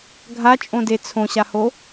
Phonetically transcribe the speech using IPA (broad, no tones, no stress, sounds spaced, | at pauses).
ɡʱ a t͡ʃʼ õ d e t͡sʰ õ ɕ a h o